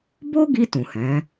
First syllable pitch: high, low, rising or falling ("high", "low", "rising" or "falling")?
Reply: high